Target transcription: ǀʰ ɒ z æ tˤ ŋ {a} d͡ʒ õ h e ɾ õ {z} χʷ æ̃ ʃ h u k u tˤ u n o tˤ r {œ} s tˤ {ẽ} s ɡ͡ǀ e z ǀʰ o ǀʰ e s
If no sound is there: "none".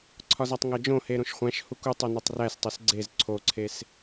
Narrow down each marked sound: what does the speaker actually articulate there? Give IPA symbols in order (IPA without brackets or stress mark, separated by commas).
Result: æ, ʃ, æ, e